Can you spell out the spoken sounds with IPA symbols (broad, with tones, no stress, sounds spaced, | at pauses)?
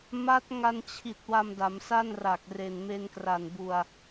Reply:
m a˦˥ t̚ ŋ a˧ n t͡ɕʰ i˨˩ t̚ w a˧ m d a˩˦ m s a˥˩ n r a˨˩ k̚ r e˨˩ n m e˧ n k r a˨˩ n b u˧ a̯